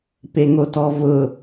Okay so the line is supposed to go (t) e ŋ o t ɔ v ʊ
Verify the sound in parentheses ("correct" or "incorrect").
incorrect